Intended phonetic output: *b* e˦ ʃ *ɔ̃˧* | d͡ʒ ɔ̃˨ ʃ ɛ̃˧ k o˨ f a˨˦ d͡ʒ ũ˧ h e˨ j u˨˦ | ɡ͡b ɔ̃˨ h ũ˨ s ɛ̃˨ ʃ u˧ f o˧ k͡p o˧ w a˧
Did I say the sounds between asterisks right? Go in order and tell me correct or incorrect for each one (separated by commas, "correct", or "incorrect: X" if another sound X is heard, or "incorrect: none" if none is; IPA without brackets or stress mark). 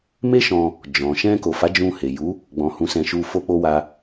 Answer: incorrect: m, correct